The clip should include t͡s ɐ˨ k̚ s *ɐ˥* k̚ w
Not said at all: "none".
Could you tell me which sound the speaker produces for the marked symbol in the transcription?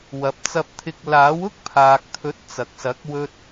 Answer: ɐ˨˥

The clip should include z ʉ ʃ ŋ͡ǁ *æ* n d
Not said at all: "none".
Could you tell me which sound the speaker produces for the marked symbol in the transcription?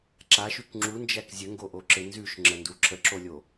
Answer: ə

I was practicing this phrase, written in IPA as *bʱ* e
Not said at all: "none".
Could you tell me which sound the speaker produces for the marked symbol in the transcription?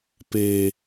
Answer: p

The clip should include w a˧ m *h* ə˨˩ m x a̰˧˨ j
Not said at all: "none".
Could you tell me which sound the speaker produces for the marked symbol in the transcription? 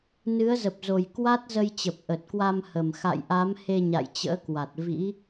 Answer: h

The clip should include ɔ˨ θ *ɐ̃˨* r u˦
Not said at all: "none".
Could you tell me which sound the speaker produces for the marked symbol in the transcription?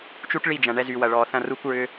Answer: ɐ̃˦˨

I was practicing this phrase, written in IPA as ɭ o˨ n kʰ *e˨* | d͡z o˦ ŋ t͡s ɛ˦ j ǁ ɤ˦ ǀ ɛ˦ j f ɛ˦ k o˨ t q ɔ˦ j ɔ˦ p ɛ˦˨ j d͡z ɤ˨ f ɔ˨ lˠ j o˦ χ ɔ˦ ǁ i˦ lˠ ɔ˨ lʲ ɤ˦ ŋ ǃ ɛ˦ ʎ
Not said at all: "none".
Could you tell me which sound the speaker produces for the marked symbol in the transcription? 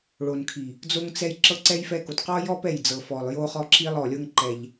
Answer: i˨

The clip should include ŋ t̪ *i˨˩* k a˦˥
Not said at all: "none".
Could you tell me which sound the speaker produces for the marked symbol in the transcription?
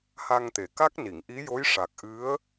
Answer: e˨˩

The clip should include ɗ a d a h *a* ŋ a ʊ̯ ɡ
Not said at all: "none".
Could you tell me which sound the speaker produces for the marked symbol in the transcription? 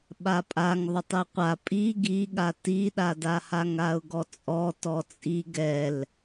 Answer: a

